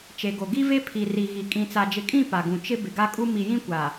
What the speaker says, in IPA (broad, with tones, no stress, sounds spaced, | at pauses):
t͡ʃ e˨ ɡ o˨ ɡ i˦ v e˦ pʰ i˨ r i˨ ɣ i˨ kʼ ĩ˨ t͡s a˨ d͡ʒ ɪ˨ kʼ ĩ˦˨ p a˨ ɡ ũ˨ t͡ʃ ɪ˦ b ɪ˨ ɡ a˦ kʼ u˦ m i˨ j ĩ˦ kʷ a˨